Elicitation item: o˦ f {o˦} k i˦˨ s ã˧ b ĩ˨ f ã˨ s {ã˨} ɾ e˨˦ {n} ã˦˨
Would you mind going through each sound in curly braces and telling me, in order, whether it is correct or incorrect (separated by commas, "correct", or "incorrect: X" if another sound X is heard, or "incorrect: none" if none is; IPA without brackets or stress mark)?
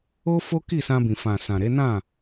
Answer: correct, correct, correct